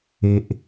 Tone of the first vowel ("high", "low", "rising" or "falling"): high